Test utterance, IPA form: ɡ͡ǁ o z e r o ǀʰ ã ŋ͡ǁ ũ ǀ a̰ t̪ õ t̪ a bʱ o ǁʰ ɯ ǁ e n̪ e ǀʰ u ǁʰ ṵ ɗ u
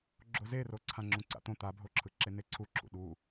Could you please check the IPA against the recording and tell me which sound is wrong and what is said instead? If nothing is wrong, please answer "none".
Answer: none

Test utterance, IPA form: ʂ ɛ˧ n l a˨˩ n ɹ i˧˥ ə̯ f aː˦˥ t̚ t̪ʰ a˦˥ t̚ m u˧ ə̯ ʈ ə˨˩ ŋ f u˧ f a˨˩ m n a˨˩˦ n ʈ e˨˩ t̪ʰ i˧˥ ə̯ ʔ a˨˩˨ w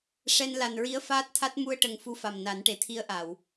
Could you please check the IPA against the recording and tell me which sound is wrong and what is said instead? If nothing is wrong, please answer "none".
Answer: none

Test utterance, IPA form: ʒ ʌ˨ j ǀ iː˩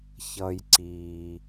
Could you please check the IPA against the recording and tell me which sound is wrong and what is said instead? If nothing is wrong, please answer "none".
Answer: ʒ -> ç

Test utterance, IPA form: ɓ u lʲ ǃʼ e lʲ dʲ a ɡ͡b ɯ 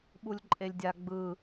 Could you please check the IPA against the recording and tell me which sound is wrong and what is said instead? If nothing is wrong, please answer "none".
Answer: none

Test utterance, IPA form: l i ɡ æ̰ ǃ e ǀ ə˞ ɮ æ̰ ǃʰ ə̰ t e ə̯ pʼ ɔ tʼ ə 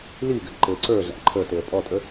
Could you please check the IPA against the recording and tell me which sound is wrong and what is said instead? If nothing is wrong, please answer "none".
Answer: ə̰ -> ə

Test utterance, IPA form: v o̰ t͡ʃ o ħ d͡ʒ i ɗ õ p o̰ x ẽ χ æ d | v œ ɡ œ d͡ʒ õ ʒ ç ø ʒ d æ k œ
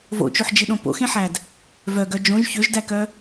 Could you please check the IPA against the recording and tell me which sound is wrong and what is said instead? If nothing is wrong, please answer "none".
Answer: χ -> ħ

